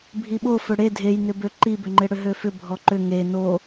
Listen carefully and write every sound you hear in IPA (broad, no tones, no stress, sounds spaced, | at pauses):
bʱ i ɓ o f ø ɽ e dʱ e j n ʏ b ø ǃ i b ʏ ŋ͡ǃ ɪ ɽ ʏ ɦ ø f ʏ bʱ ɔ ǃ ʏ ŋ e n o